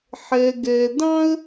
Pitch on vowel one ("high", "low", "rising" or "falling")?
low